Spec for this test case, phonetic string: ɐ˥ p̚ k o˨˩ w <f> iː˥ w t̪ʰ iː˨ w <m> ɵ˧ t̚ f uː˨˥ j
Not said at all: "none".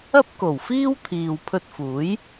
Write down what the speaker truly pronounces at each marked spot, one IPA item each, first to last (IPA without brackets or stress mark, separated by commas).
f, pʰ